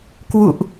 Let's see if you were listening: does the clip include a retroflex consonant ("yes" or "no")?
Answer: no